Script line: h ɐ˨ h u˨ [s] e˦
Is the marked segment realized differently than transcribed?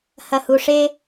yes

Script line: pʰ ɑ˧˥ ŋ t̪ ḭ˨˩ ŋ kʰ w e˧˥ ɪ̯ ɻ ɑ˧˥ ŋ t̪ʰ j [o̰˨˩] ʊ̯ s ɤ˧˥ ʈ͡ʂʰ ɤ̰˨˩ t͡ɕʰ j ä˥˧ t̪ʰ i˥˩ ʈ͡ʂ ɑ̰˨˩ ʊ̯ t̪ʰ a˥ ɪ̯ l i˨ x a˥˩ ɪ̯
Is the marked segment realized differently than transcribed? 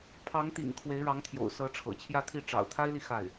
no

